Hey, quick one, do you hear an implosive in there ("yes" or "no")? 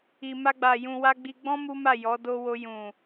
no